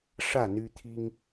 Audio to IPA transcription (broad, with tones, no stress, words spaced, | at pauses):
ʂä˥˨ n̪y˦t̪ʰi˦ŋ